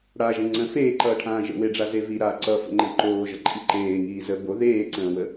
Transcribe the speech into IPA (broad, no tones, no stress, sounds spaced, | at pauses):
ɽ a ʒ ə̃ ŋ͡ǀ ə̃ f eː ǃ ʌː ʈʰ ãː ʒ ə̰ w e ɖ͡ʐ a z e v i ɾ a ǀ ʌ f ə̰ ŋ͡ǃ ə̃ ǃ oː ʒ ʌ ǃʼ i ǃ eː ŋ iː z ə b o ð eː ǀ ə̃ː w ə